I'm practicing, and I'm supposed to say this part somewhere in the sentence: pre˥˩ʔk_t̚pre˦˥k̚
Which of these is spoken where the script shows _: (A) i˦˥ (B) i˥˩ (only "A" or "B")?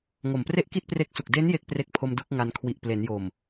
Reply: B